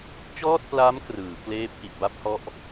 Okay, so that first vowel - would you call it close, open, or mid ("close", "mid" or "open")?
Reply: mid